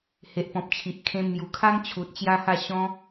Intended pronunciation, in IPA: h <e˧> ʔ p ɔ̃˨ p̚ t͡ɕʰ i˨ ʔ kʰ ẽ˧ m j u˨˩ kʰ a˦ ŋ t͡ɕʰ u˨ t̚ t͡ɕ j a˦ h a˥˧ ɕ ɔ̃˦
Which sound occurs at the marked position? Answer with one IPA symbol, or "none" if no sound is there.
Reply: e˨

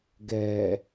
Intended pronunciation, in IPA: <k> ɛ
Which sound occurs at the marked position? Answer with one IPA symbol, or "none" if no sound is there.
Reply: ɡ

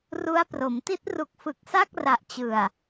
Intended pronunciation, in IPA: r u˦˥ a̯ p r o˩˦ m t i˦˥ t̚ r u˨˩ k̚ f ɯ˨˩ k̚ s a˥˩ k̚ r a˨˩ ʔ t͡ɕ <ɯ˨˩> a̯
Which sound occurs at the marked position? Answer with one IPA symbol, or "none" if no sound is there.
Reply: ɯ˨˩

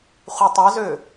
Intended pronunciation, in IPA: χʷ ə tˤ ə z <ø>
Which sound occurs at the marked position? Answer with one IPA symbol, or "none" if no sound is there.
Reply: ø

